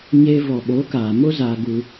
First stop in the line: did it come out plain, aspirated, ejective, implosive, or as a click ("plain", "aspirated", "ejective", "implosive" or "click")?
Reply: implosive